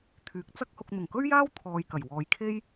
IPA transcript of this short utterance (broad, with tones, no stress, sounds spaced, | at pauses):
t̪ʰ yː˨˥ k̚ t͡s ɐ˥ k̚ h ʊ˧ k̚ n̪ ʊ˨˩ ŋ k ɵ˥ ɥ j aː˥ w t̪ʰ ɔː˧ j k ɐ˨˩ j w ɔː˨˧ j kʰ e˥ j